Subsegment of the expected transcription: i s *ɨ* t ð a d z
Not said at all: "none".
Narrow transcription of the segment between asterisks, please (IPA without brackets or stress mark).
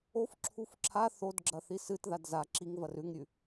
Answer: ɨ